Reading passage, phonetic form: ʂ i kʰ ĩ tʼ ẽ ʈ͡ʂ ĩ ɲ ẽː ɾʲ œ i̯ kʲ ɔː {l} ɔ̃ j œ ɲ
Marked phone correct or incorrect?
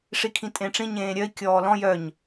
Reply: correct